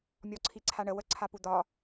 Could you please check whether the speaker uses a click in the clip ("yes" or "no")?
yes